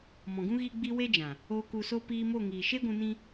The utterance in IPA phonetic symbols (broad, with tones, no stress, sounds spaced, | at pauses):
m ɔ̃˨ ɡ ũ˦ ɣ i˧ ɡ͡b i˧ w e˦ d͡ʒ ã˨ | oː˧ k u˧ s o˦ p iː˧ m o˦˨ ŋ iː˨ ʃ e˦ ɡʷ ũ˧ n ĩ˦